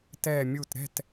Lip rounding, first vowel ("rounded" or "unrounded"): unrounded